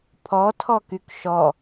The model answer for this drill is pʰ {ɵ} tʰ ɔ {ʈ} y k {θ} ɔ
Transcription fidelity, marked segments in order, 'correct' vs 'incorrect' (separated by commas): incorrect, incorrect, incorrect